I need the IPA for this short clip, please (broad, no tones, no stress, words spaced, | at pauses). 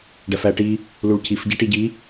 ɖæfæʈi | luɭcif ɟæʈiɟi